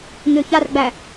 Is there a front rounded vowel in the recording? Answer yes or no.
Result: yes